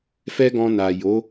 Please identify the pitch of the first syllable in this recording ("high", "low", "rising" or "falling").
high